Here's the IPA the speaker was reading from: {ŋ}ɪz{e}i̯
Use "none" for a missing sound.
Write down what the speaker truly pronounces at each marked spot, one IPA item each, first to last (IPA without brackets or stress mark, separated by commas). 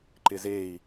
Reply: ǃ, e